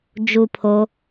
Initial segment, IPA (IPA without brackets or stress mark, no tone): d͡ʒ